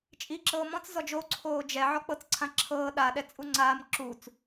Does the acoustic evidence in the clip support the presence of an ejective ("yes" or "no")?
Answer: yes